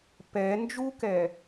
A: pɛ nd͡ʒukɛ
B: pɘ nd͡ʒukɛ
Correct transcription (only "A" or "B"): A